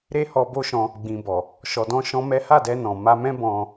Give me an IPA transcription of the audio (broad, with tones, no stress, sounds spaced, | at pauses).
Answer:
ɾ e˦ h ɔ˧ b o˦ ʃ ɔ̃˧ | ɡ͡b ĩ˨ b ɔ˨ | ʃ ɔ˧ d ɔ̃˦ ʃ ɔ̃˦ m ɛ˦ h a˦˨ d ɛ˧ n ɔ̃˨ m a˧ m ɛ̃˦ b ɔ̃˧